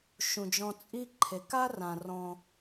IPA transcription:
ʃ ũ˩ d͡ʒ ɔ̃˨ t͡sʼ i˦ ǃʰ e˩ k a˥ r ã˩ r ɔ̃˩

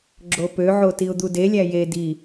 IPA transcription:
ɡ͡ǁ o p ø ʕ o t i ʊ̯ d̪ u d e lʲ æ j e d i

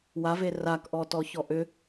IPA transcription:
w a v e r a k ʔ ɔ t ɔ ç ɔ ʔ ʏ

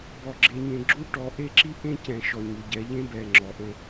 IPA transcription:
b ɔ˨ ɡ͡ǁ e˨ ɲ ẽ˨ ɡ͡ǁ u˦ ʈ ɔ˨˦ ʔ e˦ ǁ i˦ ʔ ẽ˦ c ɛ̃˨ ʃ ɔ˨ ɲ u˨ ɟ ɛ˨˦ ʎ ẽ˦ b ɛ˨ ŋ͡ǁ ɔ˨ ʔ ə̃˦

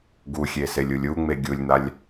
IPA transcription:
ɡ u xʲ e s e lʲ u lʲ u ŋ͡m e ɡʲ u lʲ n̪ a lʲ

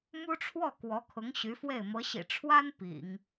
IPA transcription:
m u˥ ʈ͡ʂʰ w ɔ˥˩ k w ɔ˧˥ kʰ ʊ˧˥ ŋ ɕ y˧˥ f w e˥˩ ɪ̯ m ɤ˧˥ ɕ ḭ˨˩ ʈ͡ʂʰ w a˥ n p ḭ˨˩˦ ŋ

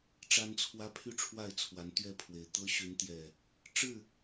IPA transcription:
ʈ͡ʂ a˦ n t͡sʰ w ä˦ pʰ y˥˨ ʈ͡ʂʰ w a˥˨ ɪ̯ t͡sʰ w a˨˦ n t̪ ɥ ɛ˥˨ pʰ w e˨˩ ɪ̯ t̪ ɤ˦ ɕ y˨˦ n t̪ j ɛ˨˩ | ʈ͡ʂ ɻ̩˥˨

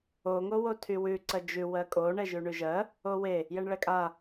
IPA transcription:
o ŋ o w o tʰ y w ʉ ǀ ɜ d͡ʒ ʉ w ɜ kʼ o ɳ ɛ ʒ ʉ ɳ ʉ ʒ ɜ | o w e | j ɛ ɳ ɭ ɛ kʼ a

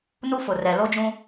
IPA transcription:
n u˦ f ʊ˨ r ɛ˨ l o˦ d͡ʒ ũ˦

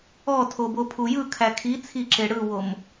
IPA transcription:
ɔ tʰ o b o pʰ u j ɯ kʰ æ kʰ i t͡sʰ i ǁ e ɽ ɯ w o m

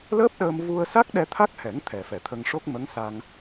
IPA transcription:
l əː˦˥ p̚ ɗ əː˧ m v u˧ ə̯ s a˦˥ k̚ ɗ ɛ˧ t̪ʰ a˦˥ k̚ h ɛ˨˩˦ ŋ t̪ʰ ɛ˨˩ f ɛ˨˩ t̪ʰ ə˧ ŋ ʂ o˦˥ k̚ m ə˧˥ ŋ s a˧ ŋ

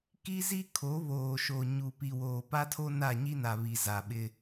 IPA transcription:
k i˦ z i˦ kʰ o˨˦ β oː˨ ʃ o˨ ɲ u˨ p i˨ w oː˨ p a˦ tʰ o˦ n a˦˨ ɲ i˦ n a˨ β i˨ z a˨ ɓ ɪ˦

